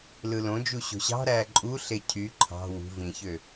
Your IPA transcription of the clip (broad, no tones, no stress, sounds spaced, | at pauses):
l ɯ l õ d͡ʒ u ɕ o̤ ɕ ɑ̤ ɾ æː ǃʼ u ɬ e cʰ y ǃʰ ɑ̤ w ṳ v ĩ ç ø